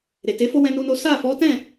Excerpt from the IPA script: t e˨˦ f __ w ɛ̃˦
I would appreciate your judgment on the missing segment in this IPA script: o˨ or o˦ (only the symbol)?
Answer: o˦